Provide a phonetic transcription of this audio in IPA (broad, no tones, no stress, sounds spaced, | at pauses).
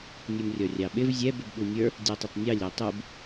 nʲ u m rʲ ɔ rʲ ɑ ɓ ɪ v zʲ ɛ b ɪ b ɓ u mʲ ə˞ | dʲ u tˤ ə tˤ nʲ ɑ lʲ ɛ tˤ u b